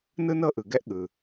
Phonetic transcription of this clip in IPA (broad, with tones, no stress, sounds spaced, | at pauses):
n ɯ˥ n ɤ˥ ʔ ɯ˩ ɡ ɛ˥ ʔ ɠ ɯ˩